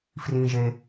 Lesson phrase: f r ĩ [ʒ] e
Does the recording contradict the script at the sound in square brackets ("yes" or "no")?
no